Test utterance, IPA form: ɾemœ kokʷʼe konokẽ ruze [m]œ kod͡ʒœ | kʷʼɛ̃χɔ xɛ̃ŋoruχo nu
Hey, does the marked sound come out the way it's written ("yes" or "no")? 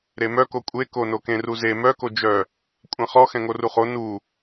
yes